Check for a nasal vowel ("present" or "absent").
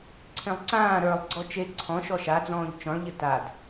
present